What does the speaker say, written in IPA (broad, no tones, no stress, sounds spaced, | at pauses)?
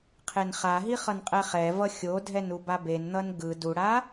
qʰ e n χ a ɦ i χ ʌ n qʼ ɛ χ ɛ v ʌ xʲ o dʱ ɛ n u b a b e n n̪ ʌ n ɡ ɯ d u ɽ a